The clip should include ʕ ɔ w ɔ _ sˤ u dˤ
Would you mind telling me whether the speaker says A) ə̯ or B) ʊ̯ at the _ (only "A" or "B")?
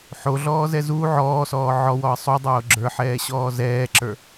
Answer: A